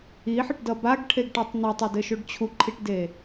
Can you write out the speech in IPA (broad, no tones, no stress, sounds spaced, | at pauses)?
i ħ ə ʈ d ʌ b a ɡ ʈʰ e ɡ ʈ a tˤ n u tˤ o d ɘ ʃ o ɖ t͡ɕʰ u ǃʰ i ʈ d e